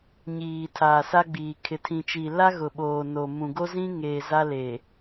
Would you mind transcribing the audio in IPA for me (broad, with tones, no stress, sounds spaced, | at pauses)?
ɲ iː˨ tʰ aː˨ s a˦ ɡ͡b iː˨ kʰ ɪ˨ tʰ ĩ˨ t͡ʃ i˨ l a˦ ɣ ʊ˨ ɓ oː˨ n o˨ m ũ˨ ɡ o˦ z ĩ˦ ŋ eː˨ z a˦ l e˨